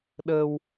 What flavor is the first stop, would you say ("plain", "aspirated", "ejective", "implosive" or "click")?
implosive